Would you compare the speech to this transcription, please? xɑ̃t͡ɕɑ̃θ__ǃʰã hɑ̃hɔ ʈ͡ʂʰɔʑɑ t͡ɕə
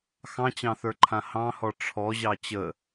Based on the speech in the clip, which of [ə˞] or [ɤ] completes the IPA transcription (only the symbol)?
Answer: ə˞